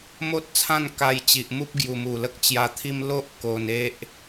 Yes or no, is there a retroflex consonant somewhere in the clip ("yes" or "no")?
no